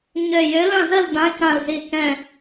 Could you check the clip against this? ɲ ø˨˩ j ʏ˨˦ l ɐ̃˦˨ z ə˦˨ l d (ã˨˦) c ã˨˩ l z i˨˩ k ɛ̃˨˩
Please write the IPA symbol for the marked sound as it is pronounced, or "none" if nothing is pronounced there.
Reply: ã˨˦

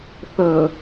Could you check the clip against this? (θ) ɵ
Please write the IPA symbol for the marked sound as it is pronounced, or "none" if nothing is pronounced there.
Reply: θ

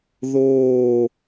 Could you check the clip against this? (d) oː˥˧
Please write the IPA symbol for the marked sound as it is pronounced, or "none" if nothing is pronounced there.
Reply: ð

